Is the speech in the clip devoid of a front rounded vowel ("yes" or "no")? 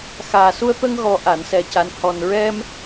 yes